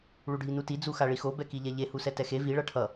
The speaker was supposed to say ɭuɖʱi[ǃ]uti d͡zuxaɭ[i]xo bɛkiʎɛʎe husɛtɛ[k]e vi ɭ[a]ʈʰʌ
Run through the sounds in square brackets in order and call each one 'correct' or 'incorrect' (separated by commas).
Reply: incorrect, correct, incorrect, incorrect